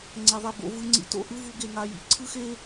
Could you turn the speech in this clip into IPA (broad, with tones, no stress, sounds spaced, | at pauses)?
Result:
ŋ͡ǀ ɛ˧ ðˤ ɛ˧ b o̰˨˦ v ɯ˦ ŋ͡ǀ ḭ˦ t o̰˦ ʔ ɯ˦ v u˧ ɡ e˧ ŋ a˧ j ḭ˨ ǀʰ ɯ˦ x e˦